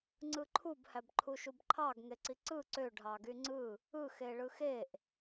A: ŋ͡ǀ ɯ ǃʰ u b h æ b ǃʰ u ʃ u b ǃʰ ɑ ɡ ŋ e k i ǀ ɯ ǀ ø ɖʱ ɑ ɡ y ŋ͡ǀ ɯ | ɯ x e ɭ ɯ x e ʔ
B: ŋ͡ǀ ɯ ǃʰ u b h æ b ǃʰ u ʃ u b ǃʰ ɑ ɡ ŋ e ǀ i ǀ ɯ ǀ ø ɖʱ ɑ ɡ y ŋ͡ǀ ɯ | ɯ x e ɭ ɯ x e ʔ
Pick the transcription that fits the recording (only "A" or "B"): B